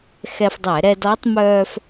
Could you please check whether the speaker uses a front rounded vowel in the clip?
yes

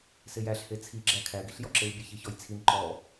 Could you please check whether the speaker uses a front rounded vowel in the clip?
no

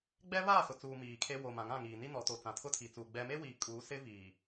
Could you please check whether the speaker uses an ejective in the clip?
yes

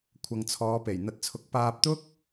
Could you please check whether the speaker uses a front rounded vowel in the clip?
no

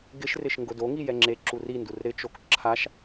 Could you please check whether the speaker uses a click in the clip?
yes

